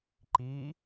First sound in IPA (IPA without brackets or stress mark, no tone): ǃ